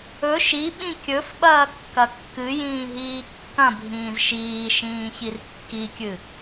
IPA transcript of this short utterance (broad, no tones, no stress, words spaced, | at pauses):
ɵ ʃiɓĩ kʲɵf ɓɐːkːɐkːɨjĩː ɦiːkːɐ̃bʱĩːz ʃiːʃĩː çirkːikʲɨ